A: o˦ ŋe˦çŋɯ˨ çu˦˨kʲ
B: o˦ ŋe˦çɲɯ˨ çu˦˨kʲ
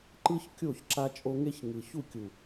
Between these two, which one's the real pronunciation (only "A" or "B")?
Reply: A